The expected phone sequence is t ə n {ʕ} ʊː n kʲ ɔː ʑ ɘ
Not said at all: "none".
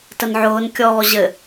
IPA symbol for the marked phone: ʕ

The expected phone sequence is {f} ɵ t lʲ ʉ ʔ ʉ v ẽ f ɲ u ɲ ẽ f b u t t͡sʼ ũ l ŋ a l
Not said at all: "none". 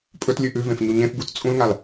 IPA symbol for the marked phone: pʼ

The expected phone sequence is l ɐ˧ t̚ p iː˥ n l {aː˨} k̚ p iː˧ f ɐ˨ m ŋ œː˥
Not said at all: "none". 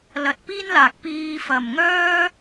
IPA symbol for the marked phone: aː˨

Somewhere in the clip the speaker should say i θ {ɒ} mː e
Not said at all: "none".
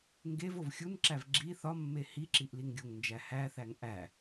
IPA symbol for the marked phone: ɒ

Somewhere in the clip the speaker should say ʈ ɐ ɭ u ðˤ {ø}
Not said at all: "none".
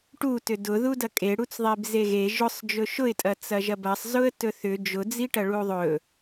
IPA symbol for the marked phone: ɵ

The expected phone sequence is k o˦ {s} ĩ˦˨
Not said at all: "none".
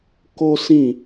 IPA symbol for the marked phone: s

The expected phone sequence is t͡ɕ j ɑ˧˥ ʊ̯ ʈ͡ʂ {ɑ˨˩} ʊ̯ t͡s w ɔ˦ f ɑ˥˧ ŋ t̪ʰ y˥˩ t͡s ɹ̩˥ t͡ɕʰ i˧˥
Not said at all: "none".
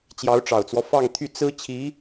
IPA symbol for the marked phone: ɑ˨˩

